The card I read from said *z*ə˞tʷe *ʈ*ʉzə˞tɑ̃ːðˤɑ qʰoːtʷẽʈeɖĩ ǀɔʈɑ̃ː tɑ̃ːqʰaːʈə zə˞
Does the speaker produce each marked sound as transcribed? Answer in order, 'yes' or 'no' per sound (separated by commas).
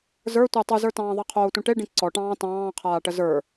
yes, no